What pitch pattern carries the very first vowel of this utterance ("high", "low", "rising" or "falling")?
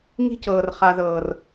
high